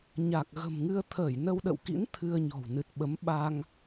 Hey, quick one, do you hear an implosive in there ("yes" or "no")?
yes